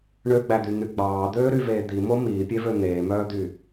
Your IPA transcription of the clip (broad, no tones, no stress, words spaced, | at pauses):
ɳøɡ͡bæd̪yn̪y ɡ͡bɑːd̪øːɾyveː d̪imo miːpʲevø n̪eːmœːd̪y